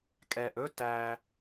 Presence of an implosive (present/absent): absent